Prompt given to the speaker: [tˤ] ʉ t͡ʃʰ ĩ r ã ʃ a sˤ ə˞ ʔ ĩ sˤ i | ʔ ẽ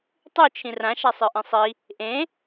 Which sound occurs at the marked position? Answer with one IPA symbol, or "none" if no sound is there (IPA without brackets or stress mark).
tˤ